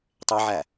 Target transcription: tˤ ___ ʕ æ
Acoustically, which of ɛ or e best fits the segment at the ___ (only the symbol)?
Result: e